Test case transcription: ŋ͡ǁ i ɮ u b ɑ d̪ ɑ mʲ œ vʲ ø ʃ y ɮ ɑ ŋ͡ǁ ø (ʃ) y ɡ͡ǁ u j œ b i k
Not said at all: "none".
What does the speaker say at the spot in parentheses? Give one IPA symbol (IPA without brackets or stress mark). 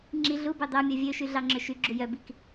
ʃ